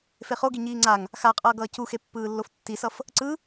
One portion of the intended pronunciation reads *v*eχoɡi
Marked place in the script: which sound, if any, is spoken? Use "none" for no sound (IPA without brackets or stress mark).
f